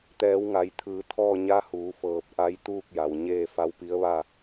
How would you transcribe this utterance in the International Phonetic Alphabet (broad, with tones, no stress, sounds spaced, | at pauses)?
t̪ ɛː˩˧ w ŋ a˩˧ j t̪ʰ ɯː˩˧ t̪ʰ ɔː˥˨ ɲ a˧˥ h uː˩˧ f ɤː˧˩ p̚ ʔ a˧˥ j t̪ uː˥˨ k̚ j a˩ w ɲ eː˥˨ f a˧˥ w p i˧˥ ə̯ ʋ a˥˨